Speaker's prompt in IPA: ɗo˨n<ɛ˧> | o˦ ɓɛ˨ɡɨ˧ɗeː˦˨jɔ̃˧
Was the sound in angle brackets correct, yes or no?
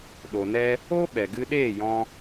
yes